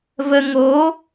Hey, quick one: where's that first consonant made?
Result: lips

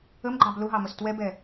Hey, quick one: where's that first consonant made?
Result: lips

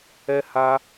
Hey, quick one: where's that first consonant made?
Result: throat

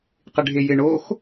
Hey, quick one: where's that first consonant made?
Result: uvula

